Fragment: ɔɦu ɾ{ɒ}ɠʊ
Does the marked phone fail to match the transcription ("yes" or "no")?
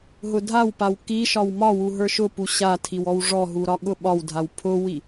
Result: no